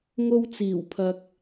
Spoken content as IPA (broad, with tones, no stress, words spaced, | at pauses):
ŋo˧wt͡siː˨˩wpʰɐ˨k̚